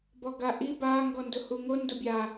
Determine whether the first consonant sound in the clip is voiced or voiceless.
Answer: voiced